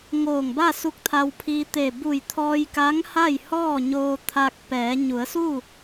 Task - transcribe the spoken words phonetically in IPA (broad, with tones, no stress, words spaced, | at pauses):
ŋoː˧˩ŋba˥˨ su˧˥k̚t̪ʰa˧wpʰiː˧ t̪e˧˩ bu˧˩jt̪ʰɔː˧j ka˧˥ŋ ha˥˨jhɔː˥˨ɲoː˧ t̪ʰa˧k̚pɛː˩˧ ɲu˩˧ə̯su˥˨